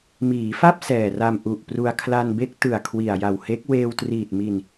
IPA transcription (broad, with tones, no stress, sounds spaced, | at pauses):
m iː˩˦ f a˥˩ p̚ s ɛː˨˩ r a˧ m ʔ u˨˩ ʔ p r u˧ a̯ kʰ l a˧ n b e˦˥ k̚ t ɯ˨˩ a̯ kʰ w i˨˩ a̯ j a˨˩ w h e˦˥ k̚ w eː˧ w t r iː˨˩ t̚ m i˧ n